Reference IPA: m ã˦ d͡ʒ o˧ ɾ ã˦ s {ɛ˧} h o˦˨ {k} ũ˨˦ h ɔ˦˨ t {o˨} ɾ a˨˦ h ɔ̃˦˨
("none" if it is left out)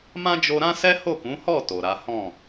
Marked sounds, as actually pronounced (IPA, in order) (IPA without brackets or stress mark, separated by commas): ɛ˦, k, o˨